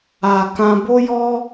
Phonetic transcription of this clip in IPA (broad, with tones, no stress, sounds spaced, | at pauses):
a˨ k ã˧ b o˦ j ɔ˦